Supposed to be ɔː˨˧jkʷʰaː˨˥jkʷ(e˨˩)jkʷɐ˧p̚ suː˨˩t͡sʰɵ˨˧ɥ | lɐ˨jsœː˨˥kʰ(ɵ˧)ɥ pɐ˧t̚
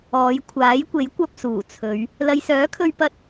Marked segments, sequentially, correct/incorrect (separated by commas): incorrect, correct